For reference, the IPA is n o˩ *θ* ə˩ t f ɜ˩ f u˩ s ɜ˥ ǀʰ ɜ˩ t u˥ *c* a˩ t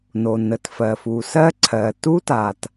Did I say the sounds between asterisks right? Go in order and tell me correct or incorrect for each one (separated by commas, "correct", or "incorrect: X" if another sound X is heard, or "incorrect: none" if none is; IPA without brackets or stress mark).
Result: incorrect: n, incorrect: t